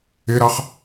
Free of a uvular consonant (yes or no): no